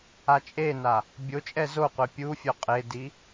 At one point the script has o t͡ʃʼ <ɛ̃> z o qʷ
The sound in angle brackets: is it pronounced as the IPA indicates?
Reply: no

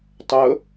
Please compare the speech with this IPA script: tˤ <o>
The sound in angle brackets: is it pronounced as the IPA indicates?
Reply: no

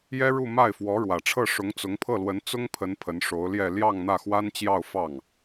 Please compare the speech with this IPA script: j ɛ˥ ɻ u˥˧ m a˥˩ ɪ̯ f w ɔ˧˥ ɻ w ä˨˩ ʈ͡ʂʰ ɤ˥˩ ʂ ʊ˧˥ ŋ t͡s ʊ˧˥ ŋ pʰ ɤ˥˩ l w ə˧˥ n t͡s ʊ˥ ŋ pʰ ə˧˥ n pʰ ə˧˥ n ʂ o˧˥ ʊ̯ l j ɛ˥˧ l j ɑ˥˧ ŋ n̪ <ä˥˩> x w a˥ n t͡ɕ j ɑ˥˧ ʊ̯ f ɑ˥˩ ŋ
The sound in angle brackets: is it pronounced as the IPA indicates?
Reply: yes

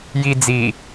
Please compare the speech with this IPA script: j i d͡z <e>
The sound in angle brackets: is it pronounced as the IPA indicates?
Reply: no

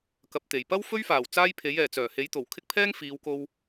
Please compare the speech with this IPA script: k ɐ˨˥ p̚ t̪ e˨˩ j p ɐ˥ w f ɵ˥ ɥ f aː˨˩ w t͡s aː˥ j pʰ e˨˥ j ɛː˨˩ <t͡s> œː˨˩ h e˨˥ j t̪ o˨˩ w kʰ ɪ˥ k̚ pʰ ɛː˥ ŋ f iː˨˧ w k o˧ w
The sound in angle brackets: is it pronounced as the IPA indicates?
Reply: yes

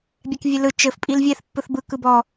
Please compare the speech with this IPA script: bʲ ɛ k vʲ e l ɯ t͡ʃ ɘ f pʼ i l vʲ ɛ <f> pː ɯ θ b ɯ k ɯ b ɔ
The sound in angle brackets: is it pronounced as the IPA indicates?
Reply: no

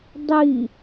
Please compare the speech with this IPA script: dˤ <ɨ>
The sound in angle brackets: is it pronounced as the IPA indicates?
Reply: no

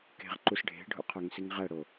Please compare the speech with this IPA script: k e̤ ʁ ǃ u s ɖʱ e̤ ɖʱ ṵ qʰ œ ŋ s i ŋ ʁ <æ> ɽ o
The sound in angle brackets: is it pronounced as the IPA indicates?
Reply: yes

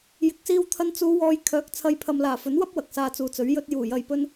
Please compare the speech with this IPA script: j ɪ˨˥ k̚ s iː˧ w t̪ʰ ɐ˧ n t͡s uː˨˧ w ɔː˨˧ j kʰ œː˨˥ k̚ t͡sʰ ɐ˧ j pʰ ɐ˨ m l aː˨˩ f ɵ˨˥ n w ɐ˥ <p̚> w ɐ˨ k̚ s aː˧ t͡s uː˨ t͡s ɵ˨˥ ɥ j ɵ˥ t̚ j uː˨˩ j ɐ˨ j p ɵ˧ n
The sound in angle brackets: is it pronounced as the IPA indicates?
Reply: yes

